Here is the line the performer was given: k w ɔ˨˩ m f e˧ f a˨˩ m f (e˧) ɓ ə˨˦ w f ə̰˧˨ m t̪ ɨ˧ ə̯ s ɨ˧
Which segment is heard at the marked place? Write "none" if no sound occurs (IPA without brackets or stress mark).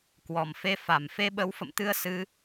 e˧